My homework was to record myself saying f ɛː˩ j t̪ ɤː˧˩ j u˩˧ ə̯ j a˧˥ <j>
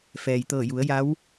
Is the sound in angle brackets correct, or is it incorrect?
incorrect